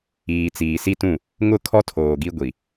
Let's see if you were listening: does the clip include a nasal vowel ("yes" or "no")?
yes